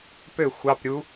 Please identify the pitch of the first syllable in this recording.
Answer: falling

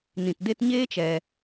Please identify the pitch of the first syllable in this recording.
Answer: low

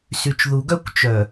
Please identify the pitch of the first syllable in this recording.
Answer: low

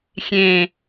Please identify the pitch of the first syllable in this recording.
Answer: low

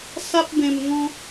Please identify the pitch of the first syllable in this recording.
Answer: high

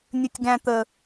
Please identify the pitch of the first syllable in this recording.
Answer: high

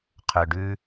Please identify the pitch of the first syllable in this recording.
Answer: low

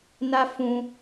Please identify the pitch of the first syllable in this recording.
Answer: high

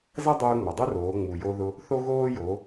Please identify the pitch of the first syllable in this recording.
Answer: high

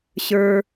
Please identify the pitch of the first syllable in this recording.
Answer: low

